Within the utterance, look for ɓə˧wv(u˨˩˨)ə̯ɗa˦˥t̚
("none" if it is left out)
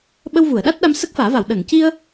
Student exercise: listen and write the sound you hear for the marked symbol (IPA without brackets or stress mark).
u˨˩˨